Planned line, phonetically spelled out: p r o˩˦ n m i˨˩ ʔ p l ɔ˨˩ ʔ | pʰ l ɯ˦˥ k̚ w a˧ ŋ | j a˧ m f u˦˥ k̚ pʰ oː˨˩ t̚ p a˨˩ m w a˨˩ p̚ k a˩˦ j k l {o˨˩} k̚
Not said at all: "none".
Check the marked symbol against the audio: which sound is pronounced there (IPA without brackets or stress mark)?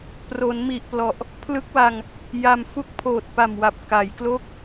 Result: o˥˩